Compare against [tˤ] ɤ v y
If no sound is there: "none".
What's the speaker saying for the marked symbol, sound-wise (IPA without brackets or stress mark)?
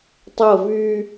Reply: tˤ